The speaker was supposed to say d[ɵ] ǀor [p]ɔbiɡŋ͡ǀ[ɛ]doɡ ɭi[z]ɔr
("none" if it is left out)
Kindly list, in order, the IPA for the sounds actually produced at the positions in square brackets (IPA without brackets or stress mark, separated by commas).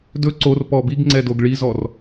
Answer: ɵ, p, ɛ, z